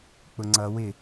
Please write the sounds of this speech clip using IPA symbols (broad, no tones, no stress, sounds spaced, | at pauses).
k͡p ʊ ŋ͡ǀ ʌ w ɪ